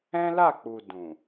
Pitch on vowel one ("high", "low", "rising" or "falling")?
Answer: high